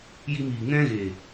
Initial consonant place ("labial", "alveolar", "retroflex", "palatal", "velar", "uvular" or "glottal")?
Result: palatal